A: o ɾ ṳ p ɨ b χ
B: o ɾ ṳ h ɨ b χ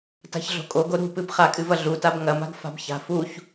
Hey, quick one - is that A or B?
A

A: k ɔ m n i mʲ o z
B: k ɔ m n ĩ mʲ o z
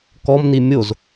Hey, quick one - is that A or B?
A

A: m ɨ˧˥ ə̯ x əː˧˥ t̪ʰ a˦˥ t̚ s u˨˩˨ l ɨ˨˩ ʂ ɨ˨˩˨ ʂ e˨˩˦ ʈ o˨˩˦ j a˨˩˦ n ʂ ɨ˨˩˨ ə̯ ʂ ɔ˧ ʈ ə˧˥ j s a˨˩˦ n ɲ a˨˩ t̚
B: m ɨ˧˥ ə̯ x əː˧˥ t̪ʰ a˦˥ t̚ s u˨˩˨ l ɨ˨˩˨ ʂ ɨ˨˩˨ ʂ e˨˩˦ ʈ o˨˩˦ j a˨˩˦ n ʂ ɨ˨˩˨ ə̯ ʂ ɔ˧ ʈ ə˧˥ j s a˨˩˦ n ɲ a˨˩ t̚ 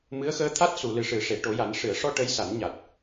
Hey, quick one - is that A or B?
A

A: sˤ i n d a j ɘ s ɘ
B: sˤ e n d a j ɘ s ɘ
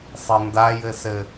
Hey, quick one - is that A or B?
B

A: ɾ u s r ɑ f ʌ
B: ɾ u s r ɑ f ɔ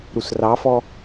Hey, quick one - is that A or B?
B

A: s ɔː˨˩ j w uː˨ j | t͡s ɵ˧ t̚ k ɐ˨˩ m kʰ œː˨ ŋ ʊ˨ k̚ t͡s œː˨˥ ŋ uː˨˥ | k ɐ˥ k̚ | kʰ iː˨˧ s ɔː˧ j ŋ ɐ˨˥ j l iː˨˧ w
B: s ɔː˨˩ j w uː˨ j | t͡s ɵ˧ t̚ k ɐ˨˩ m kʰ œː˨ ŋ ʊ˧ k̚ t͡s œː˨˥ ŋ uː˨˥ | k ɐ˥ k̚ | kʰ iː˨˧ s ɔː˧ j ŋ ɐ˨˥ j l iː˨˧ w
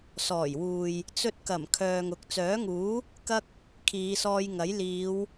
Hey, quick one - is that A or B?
A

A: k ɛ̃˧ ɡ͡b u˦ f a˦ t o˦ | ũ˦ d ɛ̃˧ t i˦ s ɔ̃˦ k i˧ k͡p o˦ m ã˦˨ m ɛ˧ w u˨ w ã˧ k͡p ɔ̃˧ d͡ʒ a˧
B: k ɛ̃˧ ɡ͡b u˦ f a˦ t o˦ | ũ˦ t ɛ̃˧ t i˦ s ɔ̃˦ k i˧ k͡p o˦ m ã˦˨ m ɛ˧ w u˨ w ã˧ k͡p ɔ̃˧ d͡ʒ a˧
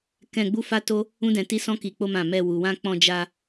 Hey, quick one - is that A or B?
A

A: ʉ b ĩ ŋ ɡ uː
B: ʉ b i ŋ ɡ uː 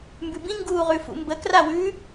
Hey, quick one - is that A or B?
A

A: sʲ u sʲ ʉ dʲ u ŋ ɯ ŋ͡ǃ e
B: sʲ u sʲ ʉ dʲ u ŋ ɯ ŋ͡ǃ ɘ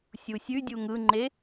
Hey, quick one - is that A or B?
A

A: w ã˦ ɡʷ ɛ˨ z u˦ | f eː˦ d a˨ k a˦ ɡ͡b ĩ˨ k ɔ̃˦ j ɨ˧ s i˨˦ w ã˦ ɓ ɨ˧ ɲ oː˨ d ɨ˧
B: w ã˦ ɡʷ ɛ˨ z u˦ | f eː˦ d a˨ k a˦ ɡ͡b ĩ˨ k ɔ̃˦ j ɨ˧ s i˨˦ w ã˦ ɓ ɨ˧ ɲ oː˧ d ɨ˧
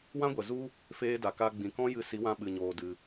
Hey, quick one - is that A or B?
B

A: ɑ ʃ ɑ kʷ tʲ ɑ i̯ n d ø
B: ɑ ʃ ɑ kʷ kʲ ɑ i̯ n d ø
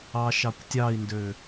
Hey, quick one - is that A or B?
A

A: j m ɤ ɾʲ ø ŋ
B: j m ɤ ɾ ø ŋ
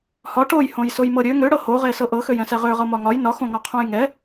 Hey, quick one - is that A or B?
A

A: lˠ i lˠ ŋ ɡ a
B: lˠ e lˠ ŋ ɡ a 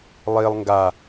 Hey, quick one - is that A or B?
A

